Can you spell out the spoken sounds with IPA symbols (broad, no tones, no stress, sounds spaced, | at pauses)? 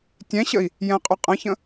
tʲ ɛ̃ ɕ ə i̯ | j ɛ̃ qʼ ʏ qʼ ə̃ ç ə̃